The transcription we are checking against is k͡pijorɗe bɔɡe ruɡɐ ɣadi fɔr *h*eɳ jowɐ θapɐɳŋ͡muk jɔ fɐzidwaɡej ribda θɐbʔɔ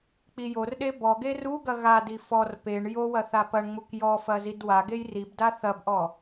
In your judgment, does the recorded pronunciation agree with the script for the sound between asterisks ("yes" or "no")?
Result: no